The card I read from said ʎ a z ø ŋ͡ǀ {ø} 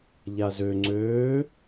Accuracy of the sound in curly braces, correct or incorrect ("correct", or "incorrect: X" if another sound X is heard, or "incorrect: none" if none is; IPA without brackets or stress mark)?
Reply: incorrect: øː